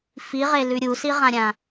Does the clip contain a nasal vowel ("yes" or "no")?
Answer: yes